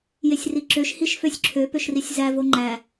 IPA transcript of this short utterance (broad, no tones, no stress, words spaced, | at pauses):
jesʲriǁøʃ hiʃføsʲǁʰø pøʃrisʲzæ voŋ͡ǃæ